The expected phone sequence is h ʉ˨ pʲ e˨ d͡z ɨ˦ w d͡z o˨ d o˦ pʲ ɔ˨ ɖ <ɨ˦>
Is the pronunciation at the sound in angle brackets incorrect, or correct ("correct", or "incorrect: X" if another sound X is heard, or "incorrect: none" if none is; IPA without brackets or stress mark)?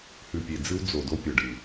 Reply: incorrect: ɨ˨